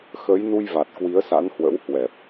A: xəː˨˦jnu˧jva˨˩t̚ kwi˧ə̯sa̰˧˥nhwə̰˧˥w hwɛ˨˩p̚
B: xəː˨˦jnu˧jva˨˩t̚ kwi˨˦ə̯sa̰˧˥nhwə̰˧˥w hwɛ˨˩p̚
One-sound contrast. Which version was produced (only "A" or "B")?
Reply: B